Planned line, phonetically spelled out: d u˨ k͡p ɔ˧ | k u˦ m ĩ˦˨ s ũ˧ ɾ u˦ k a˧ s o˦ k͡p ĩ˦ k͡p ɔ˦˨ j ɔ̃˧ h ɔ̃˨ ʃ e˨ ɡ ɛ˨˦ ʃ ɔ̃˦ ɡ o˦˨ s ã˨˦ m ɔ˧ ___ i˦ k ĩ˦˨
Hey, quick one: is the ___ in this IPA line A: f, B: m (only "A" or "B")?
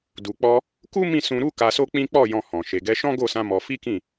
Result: A